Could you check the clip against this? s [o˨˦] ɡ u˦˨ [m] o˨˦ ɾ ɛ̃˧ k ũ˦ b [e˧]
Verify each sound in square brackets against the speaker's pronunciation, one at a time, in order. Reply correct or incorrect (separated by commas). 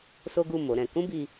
incorrect, correct, incorrect